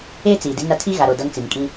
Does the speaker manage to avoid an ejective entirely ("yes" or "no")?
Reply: no